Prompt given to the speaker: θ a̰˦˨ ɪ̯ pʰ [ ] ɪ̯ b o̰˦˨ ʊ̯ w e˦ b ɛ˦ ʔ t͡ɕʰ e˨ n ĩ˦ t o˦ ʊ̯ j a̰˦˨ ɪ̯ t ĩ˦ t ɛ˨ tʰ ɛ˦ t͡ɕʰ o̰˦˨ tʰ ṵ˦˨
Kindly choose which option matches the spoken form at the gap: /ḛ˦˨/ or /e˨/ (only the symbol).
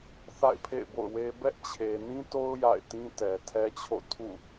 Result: ḛ˦˨